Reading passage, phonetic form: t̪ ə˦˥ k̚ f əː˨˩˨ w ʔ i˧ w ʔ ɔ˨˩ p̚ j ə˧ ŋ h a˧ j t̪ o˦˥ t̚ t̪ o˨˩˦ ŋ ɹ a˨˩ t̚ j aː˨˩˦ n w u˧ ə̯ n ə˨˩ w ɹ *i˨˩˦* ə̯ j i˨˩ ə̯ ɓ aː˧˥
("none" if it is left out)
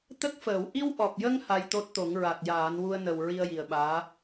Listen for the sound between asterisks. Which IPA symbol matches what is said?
i˧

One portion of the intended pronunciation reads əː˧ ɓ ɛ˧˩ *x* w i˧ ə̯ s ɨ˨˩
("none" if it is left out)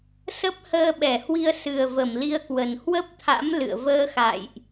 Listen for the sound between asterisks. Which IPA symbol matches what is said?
h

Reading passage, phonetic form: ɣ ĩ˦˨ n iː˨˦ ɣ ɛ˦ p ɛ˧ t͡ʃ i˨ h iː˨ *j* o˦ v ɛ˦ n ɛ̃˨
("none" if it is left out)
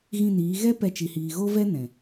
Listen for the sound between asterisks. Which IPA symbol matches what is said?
ɣ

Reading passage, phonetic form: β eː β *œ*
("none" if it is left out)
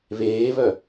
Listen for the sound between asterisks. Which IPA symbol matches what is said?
œ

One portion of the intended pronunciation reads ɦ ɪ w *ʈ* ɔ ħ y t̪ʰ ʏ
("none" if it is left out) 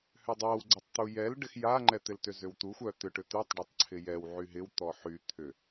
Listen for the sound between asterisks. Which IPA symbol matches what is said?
t̪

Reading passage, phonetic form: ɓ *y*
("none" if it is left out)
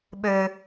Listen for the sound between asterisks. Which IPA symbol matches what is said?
ø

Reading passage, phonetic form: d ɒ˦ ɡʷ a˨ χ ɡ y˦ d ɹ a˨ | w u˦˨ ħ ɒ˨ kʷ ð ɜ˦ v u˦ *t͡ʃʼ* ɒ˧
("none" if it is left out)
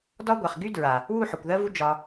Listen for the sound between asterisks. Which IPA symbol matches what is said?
d͡ʒ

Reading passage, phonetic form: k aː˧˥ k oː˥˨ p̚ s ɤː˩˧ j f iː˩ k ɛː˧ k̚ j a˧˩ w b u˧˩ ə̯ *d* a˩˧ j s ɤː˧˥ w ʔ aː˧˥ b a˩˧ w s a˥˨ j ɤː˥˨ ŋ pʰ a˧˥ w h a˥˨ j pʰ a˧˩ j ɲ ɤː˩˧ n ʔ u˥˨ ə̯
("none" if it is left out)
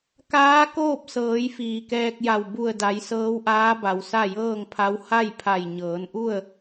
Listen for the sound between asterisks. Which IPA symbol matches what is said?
d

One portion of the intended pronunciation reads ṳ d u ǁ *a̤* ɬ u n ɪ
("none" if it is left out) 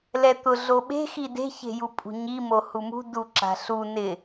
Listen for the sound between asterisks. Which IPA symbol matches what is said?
a̤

